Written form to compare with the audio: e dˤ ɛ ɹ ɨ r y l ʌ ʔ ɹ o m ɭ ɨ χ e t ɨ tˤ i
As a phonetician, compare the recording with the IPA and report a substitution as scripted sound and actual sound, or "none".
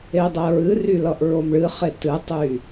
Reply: i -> y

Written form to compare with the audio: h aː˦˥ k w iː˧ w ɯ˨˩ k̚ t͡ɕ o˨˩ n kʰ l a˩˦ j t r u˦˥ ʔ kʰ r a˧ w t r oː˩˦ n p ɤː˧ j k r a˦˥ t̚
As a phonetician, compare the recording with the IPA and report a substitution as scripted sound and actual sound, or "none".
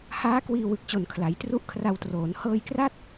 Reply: p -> h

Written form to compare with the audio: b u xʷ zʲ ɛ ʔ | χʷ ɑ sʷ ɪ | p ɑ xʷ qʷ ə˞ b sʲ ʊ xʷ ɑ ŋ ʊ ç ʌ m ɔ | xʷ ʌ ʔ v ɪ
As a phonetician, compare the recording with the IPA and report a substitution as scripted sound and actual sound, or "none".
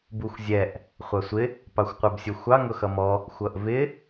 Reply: ç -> x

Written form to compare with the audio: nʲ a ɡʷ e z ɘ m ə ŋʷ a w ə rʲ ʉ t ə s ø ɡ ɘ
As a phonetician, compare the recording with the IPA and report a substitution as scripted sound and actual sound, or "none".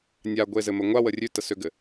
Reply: none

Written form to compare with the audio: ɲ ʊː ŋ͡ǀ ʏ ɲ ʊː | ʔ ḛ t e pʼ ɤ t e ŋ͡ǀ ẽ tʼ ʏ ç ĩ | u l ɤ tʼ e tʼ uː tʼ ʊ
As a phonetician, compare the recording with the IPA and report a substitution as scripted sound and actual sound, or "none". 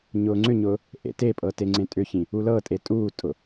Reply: none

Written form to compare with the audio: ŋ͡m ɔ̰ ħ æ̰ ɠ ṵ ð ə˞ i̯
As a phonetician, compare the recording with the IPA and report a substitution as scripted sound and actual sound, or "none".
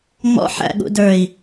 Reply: ð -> d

